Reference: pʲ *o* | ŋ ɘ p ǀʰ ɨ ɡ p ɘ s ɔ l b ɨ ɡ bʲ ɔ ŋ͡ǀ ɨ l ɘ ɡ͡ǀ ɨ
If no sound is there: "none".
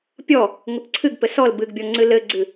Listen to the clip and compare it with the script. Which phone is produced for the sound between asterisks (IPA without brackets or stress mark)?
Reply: ɔ